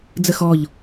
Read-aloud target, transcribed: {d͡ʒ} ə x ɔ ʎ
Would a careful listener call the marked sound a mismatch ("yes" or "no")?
yes